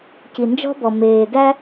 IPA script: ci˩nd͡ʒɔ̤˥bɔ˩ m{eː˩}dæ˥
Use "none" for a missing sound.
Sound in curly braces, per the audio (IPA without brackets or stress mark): eː˩